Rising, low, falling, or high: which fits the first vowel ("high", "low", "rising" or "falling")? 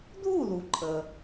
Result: falling